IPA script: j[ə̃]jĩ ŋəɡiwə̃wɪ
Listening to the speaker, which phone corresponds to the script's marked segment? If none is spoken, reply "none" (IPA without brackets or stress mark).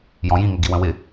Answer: ɔ̃